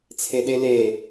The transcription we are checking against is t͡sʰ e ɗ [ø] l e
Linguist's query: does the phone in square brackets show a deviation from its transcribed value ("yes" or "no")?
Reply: yes